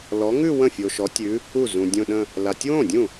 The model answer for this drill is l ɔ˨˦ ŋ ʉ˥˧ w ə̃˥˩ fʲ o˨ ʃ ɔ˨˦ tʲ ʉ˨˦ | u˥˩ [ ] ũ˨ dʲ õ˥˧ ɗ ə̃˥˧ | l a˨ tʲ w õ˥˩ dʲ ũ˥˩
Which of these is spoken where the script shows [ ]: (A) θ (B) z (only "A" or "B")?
B